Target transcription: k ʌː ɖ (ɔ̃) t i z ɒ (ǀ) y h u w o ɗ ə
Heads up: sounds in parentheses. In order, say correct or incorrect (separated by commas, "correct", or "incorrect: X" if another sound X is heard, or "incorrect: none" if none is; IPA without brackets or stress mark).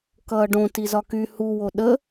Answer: incorrect: õ, incorrect: k